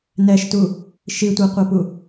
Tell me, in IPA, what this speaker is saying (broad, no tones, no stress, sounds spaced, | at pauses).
n ɛ ʃ t u | ʃ i tʷ œ qʷ ʌ p u